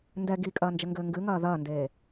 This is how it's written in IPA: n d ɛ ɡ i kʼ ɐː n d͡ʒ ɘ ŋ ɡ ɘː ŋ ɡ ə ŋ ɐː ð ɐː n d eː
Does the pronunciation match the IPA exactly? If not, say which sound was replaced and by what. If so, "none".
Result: ə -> ɨ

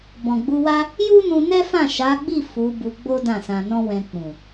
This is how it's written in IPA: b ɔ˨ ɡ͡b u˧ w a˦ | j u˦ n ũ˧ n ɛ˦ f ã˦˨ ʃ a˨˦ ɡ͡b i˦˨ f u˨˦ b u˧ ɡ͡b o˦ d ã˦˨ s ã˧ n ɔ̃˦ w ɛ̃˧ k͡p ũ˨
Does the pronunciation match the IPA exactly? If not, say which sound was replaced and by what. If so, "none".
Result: ɔ˨ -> ɔ̃˨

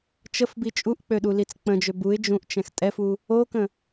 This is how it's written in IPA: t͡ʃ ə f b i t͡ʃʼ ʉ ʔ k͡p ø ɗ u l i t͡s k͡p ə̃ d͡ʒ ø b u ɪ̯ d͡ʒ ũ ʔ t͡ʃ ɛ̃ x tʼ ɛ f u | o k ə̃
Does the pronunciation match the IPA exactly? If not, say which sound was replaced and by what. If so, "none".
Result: ʉ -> u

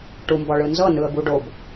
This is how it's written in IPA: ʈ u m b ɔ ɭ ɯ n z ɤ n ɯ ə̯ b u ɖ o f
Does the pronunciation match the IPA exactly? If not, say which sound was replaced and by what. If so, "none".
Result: f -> b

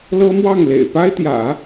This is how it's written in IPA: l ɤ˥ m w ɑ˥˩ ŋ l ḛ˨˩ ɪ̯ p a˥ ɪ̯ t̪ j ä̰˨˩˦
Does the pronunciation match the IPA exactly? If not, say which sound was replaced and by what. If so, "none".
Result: none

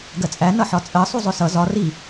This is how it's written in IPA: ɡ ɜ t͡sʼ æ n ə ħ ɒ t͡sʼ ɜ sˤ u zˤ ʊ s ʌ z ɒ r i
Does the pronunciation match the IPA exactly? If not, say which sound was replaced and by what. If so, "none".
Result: ə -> ʌ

